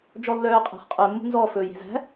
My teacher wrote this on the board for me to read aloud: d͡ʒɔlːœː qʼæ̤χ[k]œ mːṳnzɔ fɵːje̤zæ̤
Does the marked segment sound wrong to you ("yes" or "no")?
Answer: yes